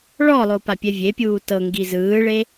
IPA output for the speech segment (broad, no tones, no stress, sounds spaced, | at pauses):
ɭ ɔ lˠ o p a pʲ ɛ vʲ e pʲ uː t ɤ ŋ ɡ i z ɯː ɭ e